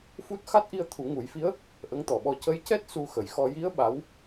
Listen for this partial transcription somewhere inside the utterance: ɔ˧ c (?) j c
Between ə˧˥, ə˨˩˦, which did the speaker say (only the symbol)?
ə˧˥